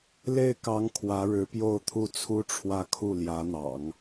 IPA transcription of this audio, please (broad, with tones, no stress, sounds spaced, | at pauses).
l e˥˩ ɪ̯ k ɑ˧˥ ŋ kʰ w ä˧˥ ɻ ɻ̩˧˥ p j o˥˧ ʊ̯ t̪ʰ u˥˩ t͡sʰ u˥ ʈ͡ʂʰ w ä˥˧ kʰ u˥˩ l j ä˧˥ n̪ ɑ̰˨˩˦ ŋ